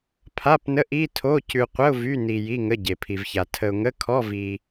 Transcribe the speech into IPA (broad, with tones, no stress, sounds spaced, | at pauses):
pʰ a˧˥˧ p n ə˧˥˧ ʔ i˧˥˧ tʰ o˧˥˧ c ʉ˧ qʷ ə˧˥˧ ʊ̯ v y˧˥˧ n i˧ j i˧˥˧ ŋ ə˧˥˧ ɟ e˧ pʰ i˧ v ç a˧ tʰ ə˧ ʊ̯ ŋ ə˧˥˧ kʰ ɔ˧˥˧ v i˧